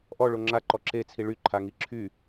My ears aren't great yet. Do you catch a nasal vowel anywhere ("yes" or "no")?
no